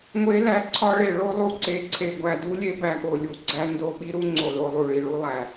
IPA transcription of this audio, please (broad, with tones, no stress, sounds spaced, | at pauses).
ŋʷ e˦˥ l æ˦˥ ǀʰ ɒ˦˥ ɭ e˦˨ ɭ o˦˥ lˠ u˦˥ ǀ e˦˨ ǀʰ e˦˨ ɡʷ æ˦˨ d u˦˥ lʲ e˦˥ b æ˦˨ ɠ o˦˨ lʲ u˦˨ ɡ͡ǀ æ˦˥ n d o˦˨ ɓ i˦˥ ɾ u˦˥ ŋ͡ǀ o˦˨ l o˦˨ lˠ u˦˨ ɭ i˦˨ ɭ u˦˥ lˠ æ˦˨